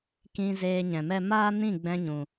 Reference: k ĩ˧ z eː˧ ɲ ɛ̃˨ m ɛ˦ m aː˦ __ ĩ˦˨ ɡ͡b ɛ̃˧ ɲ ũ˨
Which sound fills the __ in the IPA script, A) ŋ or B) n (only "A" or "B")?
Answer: B